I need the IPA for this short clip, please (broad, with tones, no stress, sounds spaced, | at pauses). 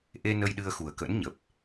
ʔ e˧ n ə˧ j ɗ ɨ˧ ə̯ x u˨˩ ə̯ k ə̰˧˥ n ɲ ə˨˩ p̚